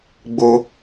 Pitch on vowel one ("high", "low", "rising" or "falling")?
high